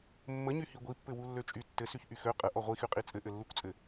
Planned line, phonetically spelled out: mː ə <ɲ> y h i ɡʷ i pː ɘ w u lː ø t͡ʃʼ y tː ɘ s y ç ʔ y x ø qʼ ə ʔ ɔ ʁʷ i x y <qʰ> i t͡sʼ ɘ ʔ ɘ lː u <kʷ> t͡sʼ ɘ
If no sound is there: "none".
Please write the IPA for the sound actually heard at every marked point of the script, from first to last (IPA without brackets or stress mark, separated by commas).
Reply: ɲ, qʼ, kʷ